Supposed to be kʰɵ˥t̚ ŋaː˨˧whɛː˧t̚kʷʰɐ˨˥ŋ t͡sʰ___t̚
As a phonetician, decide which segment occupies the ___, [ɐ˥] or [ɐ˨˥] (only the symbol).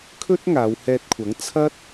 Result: ɐ˥